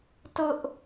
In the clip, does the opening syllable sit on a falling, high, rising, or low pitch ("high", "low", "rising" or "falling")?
high